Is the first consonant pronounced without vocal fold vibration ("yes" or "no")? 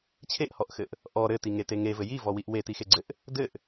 yes